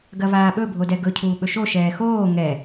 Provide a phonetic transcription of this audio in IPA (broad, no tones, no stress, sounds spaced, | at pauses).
ɡ ɐ v aː ɓ ɵ bʱ o d ɛ ɡ ɵ cʰ uː ɓ ɵ ʃ o ʃ ɛː x oː ŋ ɛ